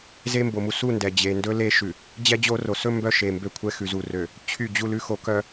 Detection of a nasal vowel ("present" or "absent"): absent